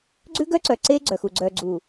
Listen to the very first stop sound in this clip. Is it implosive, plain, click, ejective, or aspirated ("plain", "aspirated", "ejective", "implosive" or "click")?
click